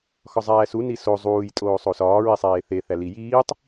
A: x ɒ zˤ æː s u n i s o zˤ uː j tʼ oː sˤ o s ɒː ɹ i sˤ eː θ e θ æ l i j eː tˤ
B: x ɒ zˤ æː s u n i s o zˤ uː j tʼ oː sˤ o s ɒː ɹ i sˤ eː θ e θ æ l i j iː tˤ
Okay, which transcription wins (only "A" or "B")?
B